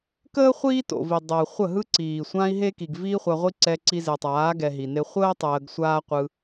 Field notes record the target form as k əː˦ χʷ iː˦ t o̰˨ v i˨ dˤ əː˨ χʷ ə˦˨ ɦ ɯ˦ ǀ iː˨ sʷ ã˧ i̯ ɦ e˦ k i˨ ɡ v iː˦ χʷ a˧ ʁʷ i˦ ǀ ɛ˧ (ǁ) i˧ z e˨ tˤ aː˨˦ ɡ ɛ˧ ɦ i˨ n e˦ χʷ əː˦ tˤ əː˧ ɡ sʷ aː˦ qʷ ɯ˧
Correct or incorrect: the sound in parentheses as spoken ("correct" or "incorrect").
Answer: incorrect